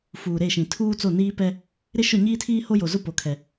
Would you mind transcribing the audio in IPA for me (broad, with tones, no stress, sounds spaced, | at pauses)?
f uː˨ ɾ e˦˨ ʃ ĩ˨ tʰ uː˦ t͡s o˦˨ n iː˦ p ɛ˦ | ɾ ɪ˦ ʃ ʊ˦˨ ɲ iː˦ tʰ iː˦ h o˦ j o˨ z ʊ˦ p o˨ kʰ ɛ˨